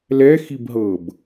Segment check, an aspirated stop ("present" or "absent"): absent